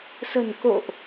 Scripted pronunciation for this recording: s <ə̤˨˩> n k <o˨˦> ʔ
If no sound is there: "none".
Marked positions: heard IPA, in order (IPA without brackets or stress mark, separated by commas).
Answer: ə̤˨˩, o̰˧˨